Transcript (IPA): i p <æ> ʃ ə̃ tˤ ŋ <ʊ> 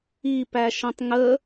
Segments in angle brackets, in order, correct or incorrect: correct, incorrect: ə

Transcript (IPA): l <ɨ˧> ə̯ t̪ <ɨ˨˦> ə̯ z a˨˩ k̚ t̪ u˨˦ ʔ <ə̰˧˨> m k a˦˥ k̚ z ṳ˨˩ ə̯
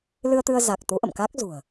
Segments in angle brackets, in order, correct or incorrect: correct, incorrect: ɨ˧, correct

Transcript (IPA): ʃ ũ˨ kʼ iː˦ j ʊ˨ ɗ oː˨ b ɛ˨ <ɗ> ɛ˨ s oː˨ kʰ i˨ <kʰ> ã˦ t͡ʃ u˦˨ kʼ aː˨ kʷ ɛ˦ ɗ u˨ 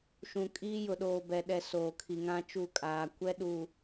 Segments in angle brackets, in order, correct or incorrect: correct, incorrect: ŋ

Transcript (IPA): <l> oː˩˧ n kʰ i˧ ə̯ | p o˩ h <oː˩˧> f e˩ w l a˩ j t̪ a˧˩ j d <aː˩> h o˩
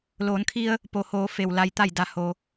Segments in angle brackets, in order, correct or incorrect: correct, correct, incorrect: a˩

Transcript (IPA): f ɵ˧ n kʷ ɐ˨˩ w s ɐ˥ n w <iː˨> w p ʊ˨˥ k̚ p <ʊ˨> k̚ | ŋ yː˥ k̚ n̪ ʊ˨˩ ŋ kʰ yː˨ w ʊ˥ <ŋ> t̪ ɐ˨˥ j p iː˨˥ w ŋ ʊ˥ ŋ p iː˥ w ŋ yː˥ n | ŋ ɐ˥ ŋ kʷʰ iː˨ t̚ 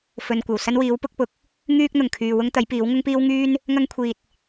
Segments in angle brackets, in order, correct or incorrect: incorrect: iː˨˥, correct, correct

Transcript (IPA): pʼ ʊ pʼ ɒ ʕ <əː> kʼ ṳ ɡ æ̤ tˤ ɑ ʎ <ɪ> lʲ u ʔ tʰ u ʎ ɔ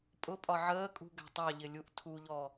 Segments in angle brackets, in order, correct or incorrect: correct, correct

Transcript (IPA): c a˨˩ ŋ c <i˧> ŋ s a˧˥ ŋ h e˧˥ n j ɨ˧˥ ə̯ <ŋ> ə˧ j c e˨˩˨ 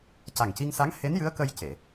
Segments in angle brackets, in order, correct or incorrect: correct, incorrect: k

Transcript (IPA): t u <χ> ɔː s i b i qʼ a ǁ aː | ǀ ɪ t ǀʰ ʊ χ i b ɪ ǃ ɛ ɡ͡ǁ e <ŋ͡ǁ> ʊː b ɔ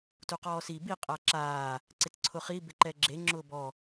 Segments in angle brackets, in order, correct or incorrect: incorrect: q, correct

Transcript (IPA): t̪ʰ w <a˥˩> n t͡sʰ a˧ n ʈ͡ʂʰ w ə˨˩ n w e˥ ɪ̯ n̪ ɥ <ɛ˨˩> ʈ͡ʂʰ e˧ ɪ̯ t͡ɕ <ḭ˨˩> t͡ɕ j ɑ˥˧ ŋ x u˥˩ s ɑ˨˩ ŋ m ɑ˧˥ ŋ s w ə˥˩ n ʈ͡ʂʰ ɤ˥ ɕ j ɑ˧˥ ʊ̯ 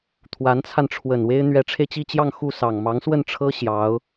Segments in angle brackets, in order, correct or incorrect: incorrect: a˧˥, incorrect: ɛ˧˥, incorrect: i˥˧

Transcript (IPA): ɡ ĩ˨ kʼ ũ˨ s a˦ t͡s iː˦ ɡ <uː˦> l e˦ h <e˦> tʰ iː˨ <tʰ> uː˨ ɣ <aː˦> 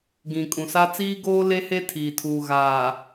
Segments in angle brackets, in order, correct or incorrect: incorrect: oː˦, correct, correct, incorrect: aː˨

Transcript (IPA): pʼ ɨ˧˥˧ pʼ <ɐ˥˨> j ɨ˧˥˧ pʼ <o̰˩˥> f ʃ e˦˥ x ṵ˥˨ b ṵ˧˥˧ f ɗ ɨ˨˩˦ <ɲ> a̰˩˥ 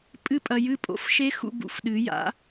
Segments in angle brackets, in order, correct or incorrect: incorrect: ɐ˨, correct, incorrect: j

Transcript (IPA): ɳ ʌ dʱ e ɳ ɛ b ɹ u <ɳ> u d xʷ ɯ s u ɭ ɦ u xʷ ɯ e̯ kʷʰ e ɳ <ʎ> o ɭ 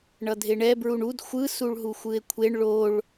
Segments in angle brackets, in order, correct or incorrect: correct, incorrect: ɭ

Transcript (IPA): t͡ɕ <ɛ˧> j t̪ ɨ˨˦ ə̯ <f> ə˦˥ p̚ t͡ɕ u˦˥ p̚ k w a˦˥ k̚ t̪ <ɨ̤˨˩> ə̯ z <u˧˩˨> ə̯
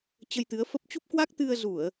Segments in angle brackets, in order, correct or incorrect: incorrect: ə˧, correct, incorrect: ɨ˧, correct

